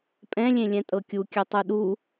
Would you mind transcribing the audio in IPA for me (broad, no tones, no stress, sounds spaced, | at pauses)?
pʼ ɛ̃ lʲ ẽ lʲ ɛ̃ tʼ ɤ kʲ u kʲ ʉ tˤ u ɗ u